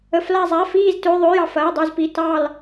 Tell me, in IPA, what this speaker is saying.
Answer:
ə˧˥˧fla˥˧zˤa˧˥˧ fiː˥˧ztø˧˥˧ðˤø˧˥˧j ɑ˥˧fɐː˧˥˧dˤu˥˧zpi˧˥˧ tɑ˥˧l

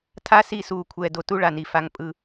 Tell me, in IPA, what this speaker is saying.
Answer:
tʰa˦si˦˨suː˨ kʷʰɛː˨do˨tu˦ ɭa˨ni˨ fa˨ŋ pʼɯ˦˨

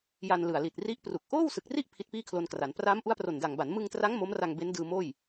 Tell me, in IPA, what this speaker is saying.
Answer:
ja˧nlɯ˨˩a̯li˨˩t̚ ri˦˥ʔpru˨˩k̚ ʔoː˥˩wsɯ˨˩k̚ri˥˩ʔ pʰi˦˥t̚piː˥˩kʰlo˧nkra˩˦n praː˦˥mʔu˦˥a̯pro˨˩nda˨˩ŋ ba˩˦nmɯ˧ŋtra˦˥ŋ mo˦˥mra˧ŋ be˦˥ndɯː˧moː˥˩j

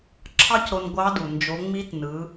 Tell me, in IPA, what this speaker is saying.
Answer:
ǁʰɑ˥cɾo˧n ɡʷɑ˧˥du˩ nd͡ʒo˩˧ŋ͡mi˧˥tnɯ˩˧

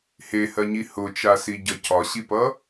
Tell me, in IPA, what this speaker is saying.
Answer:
hehɜɲi hʊt͡ʃasiɟʌ cɒɕipʌ

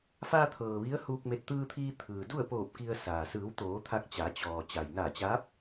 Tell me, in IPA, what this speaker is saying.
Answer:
faː˧t̪ʰɤː˩ ʋi˧˥ə̯huː˧k̚me˧t̚ t̪ɯː˧t̪ʰiː˧ t̪ʰɯː˩ du˥˨ə̯poː˧˩p̚ ki˧ə̯saː˩ sɯː˩˧wt̪oː˩˧ t̪ʰa˧k̚t͡ɕa˩˧ t͡ɕɔː˩ t͡ɕa˩jnaː˧˩t͡ɕaː˧˥p̚

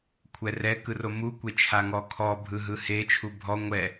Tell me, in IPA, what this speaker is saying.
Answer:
kʷʰɛrɛ kɯromu kʷet͡ʃʰaŋɔkʰɔ bʱɯɦɯhe t͡ʃʰubʱɔ ŋʷɛ

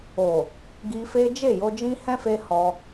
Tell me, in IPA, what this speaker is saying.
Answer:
o˨ | ɡi˧fe˦ d͡ʒe˦˨jo˧d͡ʒĩ˦ hɛ̃˦fe˧ hɔ˧

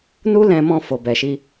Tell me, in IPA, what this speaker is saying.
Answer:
nu˦lɛ̃˧ mɔ̃˧ fo˨ bɛ˨ʃi˧

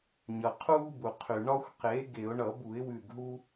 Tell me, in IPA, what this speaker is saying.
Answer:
ɲʌ˩qʰuː˦bu˩ qʰy˩ ɳɒ˦xʷqe˩˥ ɡe˧˩˧ʊ̯ ɳʌ˧˩˧bu˧˩˧ɪ̯ wʉ˧˩ɡɦu˦

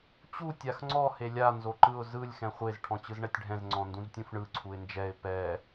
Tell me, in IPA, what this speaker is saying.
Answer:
t͡ɕu tʲaxŋ͡ǀɔ helʲa nzoǃɯʊ̯ zɯlʲ xɛ̃χʷez ʈʰɔ̃t͡ɕɯzɳɛtʲɖʱɛ̃z ŋ͡ǀɔ̃ndũztʲũfɳɯ ǀʰuɪ̯nd͡ʒɛɪ̯ pɛ

